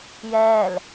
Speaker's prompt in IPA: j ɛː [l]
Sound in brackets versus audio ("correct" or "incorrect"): correct